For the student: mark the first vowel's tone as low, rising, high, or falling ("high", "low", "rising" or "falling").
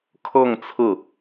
falling